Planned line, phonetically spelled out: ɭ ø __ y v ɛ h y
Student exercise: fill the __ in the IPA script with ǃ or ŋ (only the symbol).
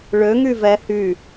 ŋ